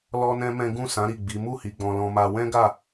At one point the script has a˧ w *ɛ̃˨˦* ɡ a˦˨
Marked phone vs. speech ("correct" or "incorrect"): incorrect